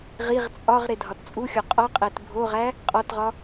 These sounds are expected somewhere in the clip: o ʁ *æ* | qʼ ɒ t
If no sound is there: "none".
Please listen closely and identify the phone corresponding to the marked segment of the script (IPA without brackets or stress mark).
æ